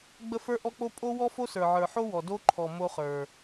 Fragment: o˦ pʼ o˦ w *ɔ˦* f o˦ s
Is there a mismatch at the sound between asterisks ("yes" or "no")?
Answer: no